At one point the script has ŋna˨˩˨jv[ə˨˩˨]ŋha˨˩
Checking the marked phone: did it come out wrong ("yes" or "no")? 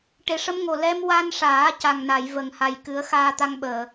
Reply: no